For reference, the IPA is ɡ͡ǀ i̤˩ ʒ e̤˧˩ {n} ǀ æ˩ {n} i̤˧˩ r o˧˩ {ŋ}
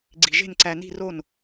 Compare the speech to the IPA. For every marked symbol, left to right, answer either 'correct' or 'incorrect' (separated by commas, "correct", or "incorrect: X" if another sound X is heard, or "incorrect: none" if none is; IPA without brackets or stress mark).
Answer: correct, correct, incorrect: n